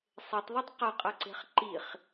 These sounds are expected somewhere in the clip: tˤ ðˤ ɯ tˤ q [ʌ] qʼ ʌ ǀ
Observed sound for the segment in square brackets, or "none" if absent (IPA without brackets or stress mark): ʌ